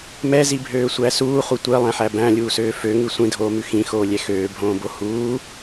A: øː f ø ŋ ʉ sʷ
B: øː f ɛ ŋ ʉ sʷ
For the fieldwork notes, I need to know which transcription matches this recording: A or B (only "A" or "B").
A